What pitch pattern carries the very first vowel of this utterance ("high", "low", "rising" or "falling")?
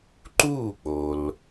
falling